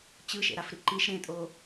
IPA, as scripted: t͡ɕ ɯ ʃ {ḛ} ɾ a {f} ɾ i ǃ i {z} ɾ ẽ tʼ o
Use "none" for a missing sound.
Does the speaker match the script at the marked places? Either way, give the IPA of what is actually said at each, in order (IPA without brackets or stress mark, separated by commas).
ḛ, f, ʃ